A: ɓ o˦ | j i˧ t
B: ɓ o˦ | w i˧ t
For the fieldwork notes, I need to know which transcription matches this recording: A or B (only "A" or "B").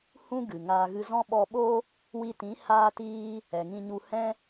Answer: B